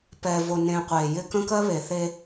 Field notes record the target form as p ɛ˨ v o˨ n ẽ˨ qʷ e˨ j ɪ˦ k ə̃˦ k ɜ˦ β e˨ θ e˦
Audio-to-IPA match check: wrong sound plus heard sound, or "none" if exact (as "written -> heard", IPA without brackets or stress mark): none